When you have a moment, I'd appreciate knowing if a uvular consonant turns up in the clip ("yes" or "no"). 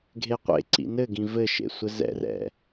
yes